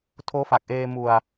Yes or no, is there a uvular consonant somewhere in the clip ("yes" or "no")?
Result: no